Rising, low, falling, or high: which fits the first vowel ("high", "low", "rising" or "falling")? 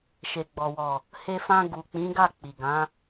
low